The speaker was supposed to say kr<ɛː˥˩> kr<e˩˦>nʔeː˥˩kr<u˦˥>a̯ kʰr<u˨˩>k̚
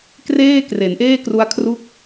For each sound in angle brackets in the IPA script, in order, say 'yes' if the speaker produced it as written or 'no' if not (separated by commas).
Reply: no, yes, yes, no